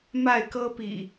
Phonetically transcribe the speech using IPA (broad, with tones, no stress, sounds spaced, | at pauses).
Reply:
m a˥˨ ɪ̯ k ɤ˦ p ḭ˨˩